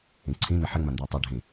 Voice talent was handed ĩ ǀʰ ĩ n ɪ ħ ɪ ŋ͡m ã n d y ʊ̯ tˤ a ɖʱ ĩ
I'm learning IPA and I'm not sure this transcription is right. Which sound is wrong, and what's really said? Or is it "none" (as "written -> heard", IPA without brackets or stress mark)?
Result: none